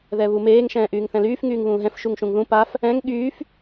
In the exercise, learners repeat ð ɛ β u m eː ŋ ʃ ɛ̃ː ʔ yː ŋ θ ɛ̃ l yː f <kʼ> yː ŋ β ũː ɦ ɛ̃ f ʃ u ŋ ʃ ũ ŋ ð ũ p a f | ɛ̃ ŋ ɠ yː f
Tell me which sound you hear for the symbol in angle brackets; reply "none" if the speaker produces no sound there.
ŋ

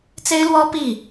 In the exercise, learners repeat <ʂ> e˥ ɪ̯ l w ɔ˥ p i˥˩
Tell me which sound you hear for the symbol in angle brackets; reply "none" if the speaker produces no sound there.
t͡s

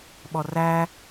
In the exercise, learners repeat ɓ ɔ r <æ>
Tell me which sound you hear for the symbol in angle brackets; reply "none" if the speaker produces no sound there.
æ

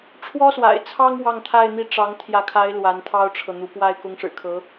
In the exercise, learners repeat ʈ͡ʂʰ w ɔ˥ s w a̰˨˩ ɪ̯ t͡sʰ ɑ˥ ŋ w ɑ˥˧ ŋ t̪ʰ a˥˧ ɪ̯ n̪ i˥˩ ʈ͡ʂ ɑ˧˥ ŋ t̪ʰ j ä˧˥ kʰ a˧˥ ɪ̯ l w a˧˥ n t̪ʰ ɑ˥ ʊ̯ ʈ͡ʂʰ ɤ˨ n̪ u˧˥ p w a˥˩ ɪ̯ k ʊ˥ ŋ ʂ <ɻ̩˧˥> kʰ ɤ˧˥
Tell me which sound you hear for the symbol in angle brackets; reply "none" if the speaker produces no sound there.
ɻ̩˨˩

